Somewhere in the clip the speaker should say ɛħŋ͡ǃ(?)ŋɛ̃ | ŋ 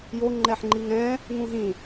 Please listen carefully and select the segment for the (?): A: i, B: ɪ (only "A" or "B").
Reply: A